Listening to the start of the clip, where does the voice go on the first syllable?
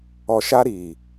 low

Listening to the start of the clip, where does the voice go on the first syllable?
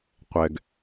low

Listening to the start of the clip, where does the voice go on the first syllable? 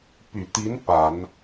low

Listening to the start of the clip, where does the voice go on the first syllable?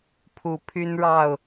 rising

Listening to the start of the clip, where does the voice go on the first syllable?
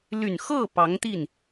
low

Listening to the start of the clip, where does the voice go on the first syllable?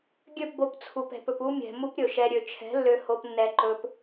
falling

